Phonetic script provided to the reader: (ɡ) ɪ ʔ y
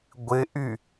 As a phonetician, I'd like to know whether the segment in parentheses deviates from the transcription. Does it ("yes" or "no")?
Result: yes